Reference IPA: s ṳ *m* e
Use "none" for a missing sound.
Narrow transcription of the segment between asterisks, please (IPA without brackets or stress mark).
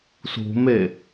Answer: m